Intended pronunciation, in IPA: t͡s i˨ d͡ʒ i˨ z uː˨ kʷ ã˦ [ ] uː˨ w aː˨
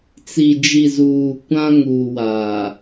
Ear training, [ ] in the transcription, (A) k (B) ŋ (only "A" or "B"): B